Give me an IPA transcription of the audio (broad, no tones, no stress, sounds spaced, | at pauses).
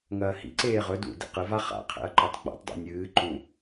ŋ ɐː h ḭ ǀ eː ʁ ɵ d ṵ d ḭ q ɨ v a χ a̰ qʰ ḛ ɐ̯ ǃ ɵ tˤ ɡ͡b a̰ tˤ dˤ ḭ nʲ ɨː ǃ ũ